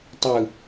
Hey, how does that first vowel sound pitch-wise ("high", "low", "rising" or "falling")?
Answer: low